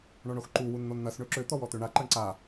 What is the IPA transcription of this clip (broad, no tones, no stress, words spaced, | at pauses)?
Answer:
ɳɔɳoxǃu wunn̪onn̪ɐs ɳøǁø t̪ɔwɔt̪øɳa ǃɐɳǀa